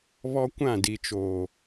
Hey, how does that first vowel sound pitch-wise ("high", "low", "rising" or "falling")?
high